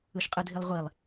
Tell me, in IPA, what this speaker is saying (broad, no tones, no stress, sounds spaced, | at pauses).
ɯ ʃ qʼ ɯ dʱ i lˠ ʁʷ i lˠ